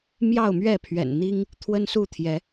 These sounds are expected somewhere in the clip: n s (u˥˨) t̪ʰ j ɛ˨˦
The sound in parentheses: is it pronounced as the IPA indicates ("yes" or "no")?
yes